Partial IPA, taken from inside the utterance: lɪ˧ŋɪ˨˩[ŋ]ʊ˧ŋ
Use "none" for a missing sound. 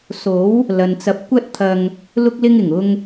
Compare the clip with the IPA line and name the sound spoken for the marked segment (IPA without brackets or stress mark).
ŋ